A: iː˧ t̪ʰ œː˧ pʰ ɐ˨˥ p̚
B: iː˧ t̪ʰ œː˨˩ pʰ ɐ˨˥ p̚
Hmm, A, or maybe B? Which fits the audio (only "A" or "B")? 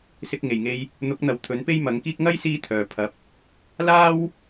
B